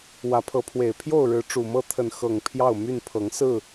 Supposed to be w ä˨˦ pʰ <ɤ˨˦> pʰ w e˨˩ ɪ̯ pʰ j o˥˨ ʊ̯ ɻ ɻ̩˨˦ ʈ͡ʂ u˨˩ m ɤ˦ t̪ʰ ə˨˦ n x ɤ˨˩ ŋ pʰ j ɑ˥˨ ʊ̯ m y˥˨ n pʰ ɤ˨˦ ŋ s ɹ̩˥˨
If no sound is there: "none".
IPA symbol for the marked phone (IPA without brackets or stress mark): ɤ˨˦